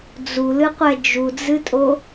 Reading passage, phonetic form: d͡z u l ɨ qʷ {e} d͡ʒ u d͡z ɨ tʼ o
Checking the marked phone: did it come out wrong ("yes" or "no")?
yes